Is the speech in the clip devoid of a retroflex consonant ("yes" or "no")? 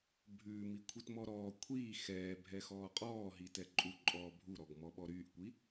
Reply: yes